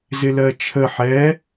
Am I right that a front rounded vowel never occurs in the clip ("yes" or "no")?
yes